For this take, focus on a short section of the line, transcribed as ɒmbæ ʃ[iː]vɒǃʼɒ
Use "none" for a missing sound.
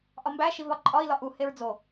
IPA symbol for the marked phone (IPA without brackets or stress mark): i